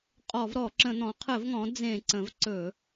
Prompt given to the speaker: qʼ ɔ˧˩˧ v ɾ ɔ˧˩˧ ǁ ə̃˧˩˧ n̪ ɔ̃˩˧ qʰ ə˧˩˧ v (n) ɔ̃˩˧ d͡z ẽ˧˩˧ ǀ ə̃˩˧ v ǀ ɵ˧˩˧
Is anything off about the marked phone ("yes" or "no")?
yes